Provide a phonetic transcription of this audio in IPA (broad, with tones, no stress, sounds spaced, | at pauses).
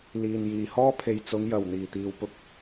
l iː˨ n j iː˨ h ɔː˥ pʰ e˨ j t͡s ʊ˨˧ ŋ j ɐ˨˩ w n̪ iː˨˩ t̪ iː˨ w p ʊ˧ k̚